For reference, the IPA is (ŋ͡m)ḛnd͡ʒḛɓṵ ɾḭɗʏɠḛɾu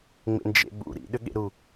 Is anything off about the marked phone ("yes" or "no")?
no